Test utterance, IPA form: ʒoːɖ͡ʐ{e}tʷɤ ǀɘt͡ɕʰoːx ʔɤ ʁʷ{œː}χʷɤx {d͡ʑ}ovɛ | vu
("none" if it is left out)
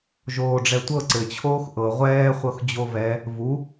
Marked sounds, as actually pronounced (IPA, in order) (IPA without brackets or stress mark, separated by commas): ɛ, ɛː, d͡ʑ